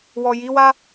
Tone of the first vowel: low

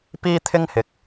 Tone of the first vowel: high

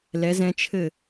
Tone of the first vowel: rising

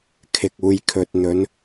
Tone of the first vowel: low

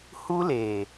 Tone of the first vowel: high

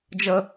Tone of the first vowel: low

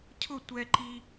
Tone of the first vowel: falling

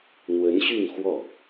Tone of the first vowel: rising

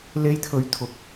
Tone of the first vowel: high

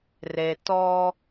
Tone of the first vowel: low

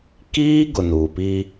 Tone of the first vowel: high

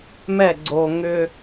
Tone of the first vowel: falling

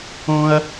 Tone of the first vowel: high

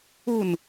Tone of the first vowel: falling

